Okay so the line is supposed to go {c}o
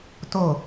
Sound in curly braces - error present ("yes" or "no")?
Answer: yes